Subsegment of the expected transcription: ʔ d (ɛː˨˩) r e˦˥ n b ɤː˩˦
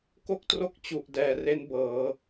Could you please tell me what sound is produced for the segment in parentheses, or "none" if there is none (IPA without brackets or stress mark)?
ɛː˨˩